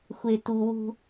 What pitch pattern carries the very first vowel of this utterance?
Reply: low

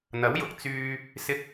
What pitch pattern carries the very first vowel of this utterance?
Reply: rising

